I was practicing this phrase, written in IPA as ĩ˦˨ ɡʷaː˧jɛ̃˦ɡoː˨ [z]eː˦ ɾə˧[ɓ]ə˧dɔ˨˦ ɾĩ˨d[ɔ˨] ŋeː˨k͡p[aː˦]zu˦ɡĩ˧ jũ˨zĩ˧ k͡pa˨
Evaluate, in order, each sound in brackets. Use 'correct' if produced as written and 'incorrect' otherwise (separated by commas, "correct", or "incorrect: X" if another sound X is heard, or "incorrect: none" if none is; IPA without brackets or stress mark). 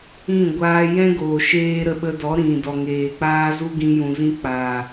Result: incorrect: ʃ, correct, correct, correct